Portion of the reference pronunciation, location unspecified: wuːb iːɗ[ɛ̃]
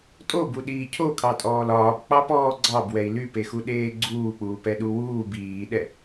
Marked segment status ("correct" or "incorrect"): incorrect